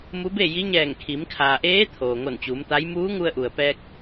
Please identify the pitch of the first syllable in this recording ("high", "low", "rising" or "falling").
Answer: rising